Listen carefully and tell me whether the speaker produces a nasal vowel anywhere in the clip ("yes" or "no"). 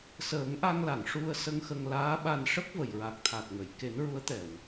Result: no